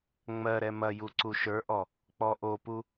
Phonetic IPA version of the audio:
ŋ͡m ɜ ɾ ɛ m ɐ j u ǀ u ʃ ə˞ ʔ ɔ | k͡p ɔ ʔ o p u

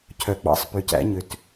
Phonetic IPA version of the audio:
cʰ œ˨˩˦ ɡ͡b ɑ̰˨ sˤ p y˨ c æ̰˨˩˦ ɲ ø˨ t

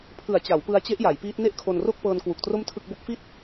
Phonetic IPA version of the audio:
pʰ ɯ˨˩ a̯ t͡ɕ a˩˦ w p ɯ˧ a̯ t͡ɕ e˦˥ ʔ j a˩˦ j p iː˦˥ t̚ n e˥˩ ʔ kʰ o˧ n r o˥˩ k̚ p ɤː˧ n k w u˨˩ k̚ t r o˥˩ m tʰ ɯ˥˩ k̚ b o˦˥ k̚ f i˥˩ t̚

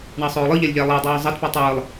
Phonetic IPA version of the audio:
ɳ ɑ sˤ oː lˠ ɯ ʎ æ lʲ ʎ æ lˠ æ dˤ oː zˤ ɑ t p o tˤ ɯː lˠ

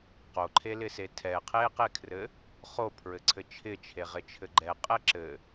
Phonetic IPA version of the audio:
q o ǃʰ e l ɪ s e tʰ ɛ qʰ e q e kʰ r ɘ | χ o pʰ ɹ ɘ ǀʰ ɘ t͡ʃʰ ɪ t͡ʃʰ e ʁ ɪ t͡ʃʰ ɘ ɡ͡ǃ ɛ qʼ ɛ ǁ ɘ

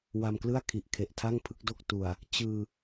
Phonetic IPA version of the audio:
w a˧ m k l ɯ˥˩ a̯ kʰ i˨˩ ʔ kʰ e˨˩ ʔ tʰ a˥˩ ŋ pʰ ɯ˥˩ k̚ d o˥˩ k̚ t u˨˩ a̯ | t͡ɕ ɯː˧

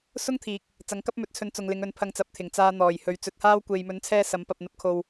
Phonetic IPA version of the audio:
s ʊ˥ ŋ t̪ʰ iː˨˥ k̚ | t͡s ɐ˨˥ ŋ k ɐ˥ p̚ m ɵ˨˥ t̚ t͡sʰ ɵ˨˥ n t͡s ʊ˨ ŋ l ɪ˨˧ ŋ ɵ˨˥ n pʰ ɐ˧ ŋ t͡s ɐ˨˥ p̚ t̪ʰ ɪ˨˩ ŋ t͡s aː˧ n̪ ɔː˨˩ j h ɵ˨ ɥ t͡s ɵ˨˥ t̚ h aː˥ w kʷ e˨ j m ɵ˨˥ n t͡sʰ ɛː˧ s ɐ˨˥ m p ɐ˧ p̚ n̪ ɐ˧ p̚ kʰ o˧ w

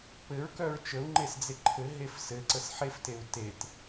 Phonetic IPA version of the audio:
p ɘ ɹ k œ ɹ t͡ʃ ə u̯ ŋ͡ǃ e s d͡z e ǃʰ ɘ ɦ e f s ɘ ǀ ə s ħ e f t e u̯ t e t

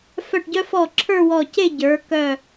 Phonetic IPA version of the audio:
f œ˧˩ ʈ ɟ œ˧ f ɔ˧˩ ǁʰ ə˞˥˧ w ɔ˧˩ c e˥˧ ɟ ə˞˩˧ k œ˧˩

